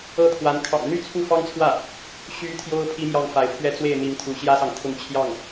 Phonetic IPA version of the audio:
ɤ˥˩t̪ʰwa˧˥n kʰɑ̰˨˩ŋn̪y˥˧ t͡sʰu˥˩fɑ˥ŋt͡sʰwä˥˩ | ɕy˧˥ t̪ʰjo˥ʊ̯ pʰi˥mjɑ˥˩ŋfa˧˥ɪ̯ pʰɥɛ˥˧t͡swe˥˩ɪ̯ n̪i˧˥ŋt̪ʰu˧˥ɕjä˥sɑ˨ŋ t̪ʰʊ˥˧ŋt͡ɕʰjɑ˥˩ŋ

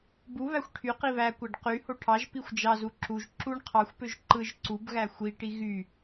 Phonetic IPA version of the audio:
bu βæxʷʈʰyqi βækʷæɖ qyho ʈʰɑʒpixʷ d͡ʒɑzu ǁuʒ ǁuɳ qʰɑxʷpøʒ ǃɯʒ ǀubɣæ xʷiʈi ɣy

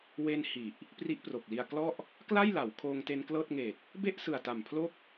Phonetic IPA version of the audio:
we˧n hi˨˩ʔ | pri˦˥ʔpro˨˩k̚li˧a̯klɔ˥˩ʔ | kla˥˩jla˩˦w kʰoː˧ŋte˧nklɤː˥˩t̚ ŋe˨˩k̚ | be˥˩ʔsɯ˨˩a̯ta˨˩m pʰlo˥˩k̚

